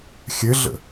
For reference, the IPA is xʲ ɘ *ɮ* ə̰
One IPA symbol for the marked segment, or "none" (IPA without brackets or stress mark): ɮ